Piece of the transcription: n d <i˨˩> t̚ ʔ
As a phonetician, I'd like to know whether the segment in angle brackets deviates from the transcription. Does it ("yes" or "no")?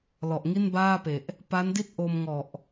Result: yes